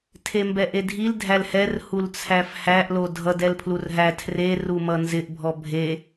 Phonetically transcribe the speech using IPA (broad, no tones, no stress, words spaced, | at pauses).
tʰembɛʔedʱil dʱælhɛr hult͡sʰæfhæʔ lodʱʌd ɛlpʰlurɦæ tʰre rumʌnzɪʔ bʱɔbʱe